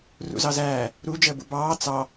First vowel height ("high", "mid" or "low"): high